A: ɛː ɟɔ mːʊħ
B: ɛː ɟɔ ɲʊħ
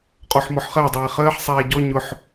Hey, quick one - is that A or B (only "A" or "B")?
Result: B